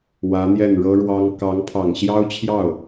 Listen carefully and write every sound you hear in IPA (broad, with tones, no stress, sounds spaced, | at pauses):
w ä˧˥ n̪ j ɛ˥˩ n ɻ ɤ˥ ɻ w ɑ˥ ŋ k ɑ˧˥ ŋ pʰ ɑ˨˩ ŋ ɕ j ɑ˥ ʊ̯ t͡ɕʰ j ɑ˥˩ ʊ̯